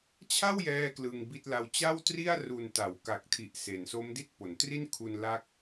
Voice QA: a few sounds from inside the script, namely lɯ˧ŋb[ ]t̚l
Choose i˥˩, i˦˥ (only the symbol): i˥˩